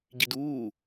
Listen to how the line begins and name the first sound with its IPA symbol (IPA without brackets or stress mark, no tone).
ɟ